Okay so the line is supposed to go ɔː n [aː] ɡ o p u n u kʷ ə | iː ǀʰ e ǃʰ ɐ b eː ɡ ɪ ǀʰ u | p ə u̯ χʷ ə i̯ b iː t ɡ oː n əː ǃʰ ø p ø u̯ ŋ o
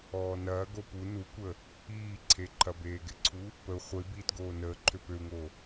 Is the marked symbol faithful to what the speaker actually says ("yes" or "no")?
no